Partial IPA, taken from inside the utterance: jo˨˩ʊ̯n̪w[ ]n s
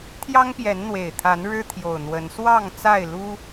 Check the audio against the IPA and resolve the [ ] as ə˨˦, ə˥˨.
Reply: ə˨˦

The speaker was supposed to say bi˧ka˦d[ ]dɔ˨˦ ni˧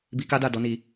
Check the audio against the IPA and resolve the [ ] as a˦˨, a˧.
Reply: a˦˨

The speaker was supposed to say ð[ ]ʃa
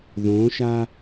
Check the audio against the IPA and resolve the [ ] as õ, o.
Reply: õ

